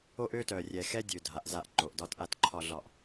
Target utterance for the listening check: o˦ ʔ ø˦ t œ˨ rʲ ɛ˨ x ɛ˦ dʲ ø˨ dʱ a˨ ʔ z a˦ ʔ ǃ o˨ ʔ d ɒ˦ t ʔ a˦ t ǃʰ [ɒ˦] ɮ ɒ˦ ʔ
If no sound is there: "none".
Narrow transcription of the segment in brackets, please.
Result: ɒ˦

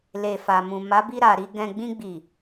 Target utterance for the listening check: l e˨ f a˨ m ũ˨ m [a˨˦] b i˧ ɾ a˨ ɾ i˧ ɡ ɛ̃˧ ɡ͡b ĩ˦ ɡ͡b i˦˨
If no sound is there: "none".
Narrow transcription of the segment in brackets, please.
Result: a˨˦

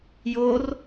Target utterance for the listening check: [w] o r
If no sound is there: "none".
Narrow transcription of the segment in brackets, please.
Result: j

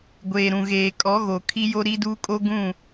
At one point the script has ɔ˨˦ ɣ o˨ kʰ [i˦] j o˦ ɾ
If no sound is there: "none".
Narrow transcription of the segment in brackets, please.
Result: i˦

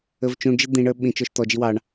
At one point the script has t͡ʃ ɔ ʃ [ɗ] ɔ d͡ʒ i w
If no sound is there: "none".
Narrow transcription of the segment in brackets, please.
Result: t̪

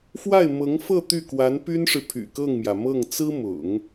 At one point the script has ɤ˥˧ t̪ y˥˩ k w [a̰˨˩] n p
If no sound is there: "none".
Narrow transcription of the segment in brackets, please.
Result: a˧˥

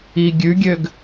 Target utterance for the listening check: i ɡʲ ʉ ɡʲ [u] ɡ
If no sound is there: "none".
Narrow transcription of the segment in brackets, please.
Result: ø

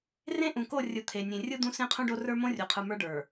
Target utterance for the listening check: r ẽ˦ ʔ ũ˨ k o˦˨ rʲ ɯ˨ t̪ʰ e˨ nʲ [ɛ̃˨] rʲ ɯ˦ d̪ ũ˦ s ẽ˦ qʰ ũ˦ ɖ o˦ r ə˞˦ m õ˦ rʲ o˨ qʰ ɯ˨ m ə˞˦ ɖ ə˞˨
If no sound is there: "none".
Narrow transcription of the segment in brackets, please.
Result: ẽ˨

